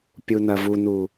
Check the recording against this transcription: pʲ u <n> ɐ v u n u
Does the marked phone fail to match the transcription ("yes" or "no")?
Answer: no